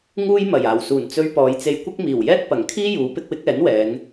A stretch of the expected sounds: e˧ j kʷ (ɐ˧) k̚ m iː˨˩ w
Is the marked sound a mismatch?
yes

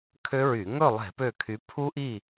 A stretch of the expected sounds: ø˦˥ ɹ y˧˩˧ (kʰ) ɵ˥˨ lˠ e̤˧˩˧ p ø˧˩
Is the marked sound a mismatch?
yes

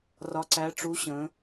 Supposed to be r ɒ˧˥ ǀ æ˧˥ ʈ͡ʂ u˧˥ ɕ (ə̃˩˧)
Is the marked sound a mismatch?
no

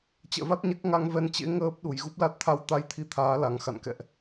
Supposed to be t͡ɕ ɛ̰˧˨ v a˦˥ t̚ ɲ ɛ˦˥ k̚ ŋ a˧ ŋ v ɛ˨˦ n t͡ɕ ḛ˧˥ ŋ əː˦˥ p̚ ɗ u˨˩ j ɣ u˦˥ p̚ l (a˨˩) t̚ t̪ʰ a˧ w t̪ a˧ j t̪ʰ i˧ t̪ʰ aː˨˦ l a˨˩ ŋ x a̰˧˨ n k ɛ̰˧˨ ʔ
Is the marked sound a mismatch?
yes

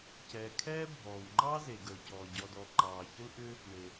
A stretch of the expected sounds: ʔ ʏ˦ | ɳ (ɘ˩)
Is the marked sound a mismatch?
yes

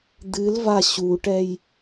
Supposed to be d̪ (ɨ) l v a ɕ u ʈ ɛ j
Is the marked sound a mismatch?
no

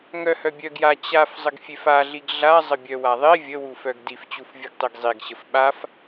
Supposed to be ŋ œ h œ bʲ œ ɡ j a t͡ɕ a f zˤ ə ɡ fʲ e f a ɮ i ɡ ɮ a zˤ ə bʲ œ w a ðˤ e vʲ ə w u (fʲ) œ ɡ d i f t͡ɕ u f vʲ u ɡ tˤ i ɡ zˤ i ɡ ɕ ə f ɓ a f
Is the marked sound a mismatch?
yes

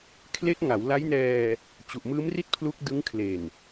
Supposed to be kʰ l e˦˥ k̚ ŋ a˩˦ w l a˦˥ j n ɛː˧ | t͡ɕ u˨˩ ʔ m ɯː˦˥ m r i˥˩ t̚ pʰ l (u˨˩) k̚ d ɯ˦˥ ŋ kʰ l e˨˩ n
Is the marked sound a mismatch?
yes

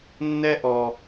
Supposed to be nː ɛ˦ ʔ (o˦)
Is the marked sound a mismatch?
yes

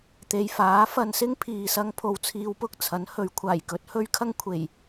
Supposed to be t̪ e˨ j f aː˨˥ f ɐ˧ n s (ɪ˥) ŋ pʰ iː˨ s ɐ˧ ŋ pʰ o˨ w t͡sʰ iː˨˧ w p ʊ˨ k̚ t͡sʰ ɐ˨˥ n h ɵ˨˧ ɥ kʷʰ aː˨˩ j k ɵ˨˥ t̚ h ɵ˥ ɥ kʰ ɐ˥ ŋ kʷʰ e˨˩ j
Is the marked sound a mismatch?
no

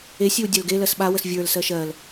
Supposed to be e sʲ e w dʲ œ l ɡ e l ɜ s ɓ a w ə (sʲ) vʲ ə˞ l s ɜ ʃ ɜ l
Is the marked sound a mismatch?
yes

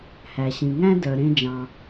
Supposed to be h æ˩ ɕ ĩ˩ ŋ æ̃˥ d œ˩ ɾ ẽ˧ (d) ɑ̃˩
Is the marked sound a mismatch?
yes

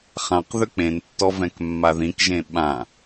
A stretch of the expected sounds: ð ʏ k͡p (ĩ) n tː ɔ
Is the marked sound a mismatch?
yes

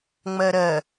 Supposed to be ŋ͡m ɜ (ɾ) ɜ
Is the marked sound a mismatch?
no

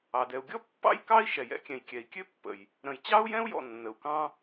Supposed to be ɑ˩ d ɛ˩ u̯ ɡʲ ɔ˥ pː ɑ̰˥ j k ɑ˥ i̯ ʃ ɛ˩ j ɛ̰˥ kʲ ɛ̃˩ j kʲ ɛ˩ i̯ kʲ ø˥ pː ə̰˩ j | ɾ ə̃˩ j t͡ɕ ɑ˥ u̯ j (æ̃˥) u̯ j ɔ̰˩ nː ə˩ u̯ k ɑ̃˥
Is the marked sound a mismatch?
yes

